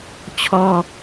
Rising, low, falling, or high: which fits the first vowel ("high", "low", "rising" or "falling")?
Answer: high